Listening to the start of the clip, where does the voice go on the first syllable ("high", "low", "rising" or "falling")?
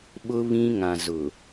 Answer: high